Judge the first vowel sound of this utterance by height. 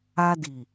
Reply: low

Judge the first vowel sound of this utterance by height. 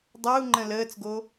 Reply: mid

